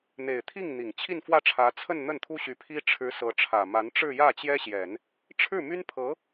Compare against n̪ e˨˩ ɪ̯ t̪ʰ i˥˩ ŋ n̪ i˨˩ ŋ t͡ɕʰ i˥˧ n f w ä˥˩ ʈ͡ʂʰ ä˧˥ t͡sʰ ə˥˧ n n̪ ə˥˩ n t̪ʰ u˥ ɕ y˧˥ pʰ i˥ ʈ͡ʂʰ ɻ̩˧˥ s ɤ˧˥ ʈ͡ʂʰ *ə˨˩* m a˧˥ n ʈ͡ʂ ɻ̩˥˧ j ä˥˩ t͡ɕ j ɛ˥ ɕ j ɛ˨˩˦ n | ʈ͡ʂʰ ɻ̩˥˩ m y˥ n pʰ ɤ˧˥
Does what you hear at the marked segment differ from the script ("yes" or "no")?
yes